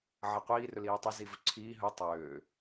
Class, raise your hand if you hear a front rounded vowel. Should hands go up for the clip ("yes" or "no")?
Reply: yes